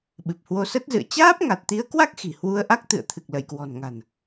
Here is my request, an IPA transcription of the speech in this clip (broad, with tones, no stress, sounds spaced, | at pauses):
ɓ ɨ˨˩ p̚ h w o˧ s ə˦˥ t̚ z ɨ̰˧˨ ə̯ t͡ɕ aː˦˥ p̚ ŋ a˨˩ t̚ t̪ i˨˦ ə̯ k w a˦˥ k̚ x i̤˨˩ h w u˧ ə̯ ʔ a˦˥ k̚ t̪ ɨ̰˧˨ ə̯ t̪ʰ ɨ˨˩ k̚ l ə˧˩ j k w ɔ̤˨˩ n ŋ a̤˨˩ n